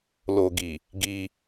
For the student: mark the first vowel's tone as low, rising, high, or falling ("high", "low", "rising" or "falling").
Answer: low